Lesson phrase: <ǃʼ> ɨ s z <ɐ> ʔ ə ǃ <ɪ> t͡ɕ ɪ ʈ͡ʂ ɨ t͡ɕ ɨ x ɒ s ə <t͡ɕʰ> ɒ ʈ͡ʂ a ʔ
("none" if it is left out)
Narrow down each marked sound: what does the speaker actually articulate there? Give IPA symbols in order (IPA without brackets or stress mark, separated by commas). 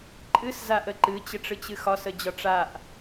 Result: ǃʼ, a, ɨ, d͡ʑ